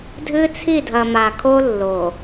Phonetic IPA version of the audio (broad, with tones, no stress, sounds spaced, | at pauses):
dʱ ɨ˦ t͡sʰ i˦˨ dʱ ɐ˨ m a˨ kʰ o˦ lː o˨